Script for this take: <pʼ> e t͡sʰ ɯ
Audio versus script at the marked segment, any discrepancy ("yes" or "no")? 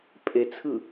no